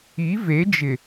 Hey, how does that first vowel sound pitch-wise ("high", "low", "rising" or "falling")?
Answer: rising